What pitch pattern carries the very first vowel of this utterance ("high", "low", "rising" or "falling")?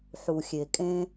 low